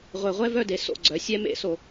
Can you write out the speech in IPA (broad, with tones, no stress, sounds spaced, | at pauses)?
ʁʷ e˧˩ ʁʷ ɛ˥ v œ˥˧ d e˩˥ s o̰˧˩ ɡ͡ǀ œ˩˥ sʲ ɛ˥ m ḛ˥˧ s o˧˩